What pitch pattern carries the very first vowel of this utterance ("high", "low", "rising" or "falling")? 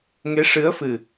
rising